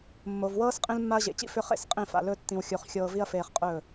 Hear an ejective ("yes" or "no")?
yes